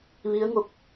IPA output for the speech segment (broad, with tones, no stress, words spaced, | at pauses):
ʋi˧˥ə̯ŋo˧˩k̚